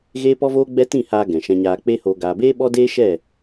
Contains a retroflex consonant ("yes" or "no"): no